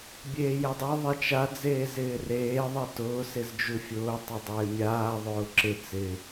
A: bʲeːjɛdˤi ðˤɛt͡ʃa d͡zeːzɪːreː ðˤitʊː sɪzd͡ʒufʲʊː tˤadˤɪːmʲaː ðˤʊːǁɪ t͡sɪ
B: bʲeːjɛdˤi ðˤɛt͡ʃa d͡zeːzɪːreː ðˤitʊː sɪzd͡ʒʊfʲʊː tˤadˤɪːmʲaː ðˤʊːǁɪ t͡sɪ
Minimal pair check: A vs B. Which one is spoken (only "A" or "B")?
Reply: A